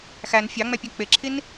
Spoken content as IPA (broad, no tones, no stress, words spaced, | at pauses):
xæn fʲɑŋ͡mɛpʲɛ k͡pɪǁʰin